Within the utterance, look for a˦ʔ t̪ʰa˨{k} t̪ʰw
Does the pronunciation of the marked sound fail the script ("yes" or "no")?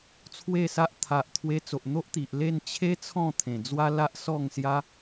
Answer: yes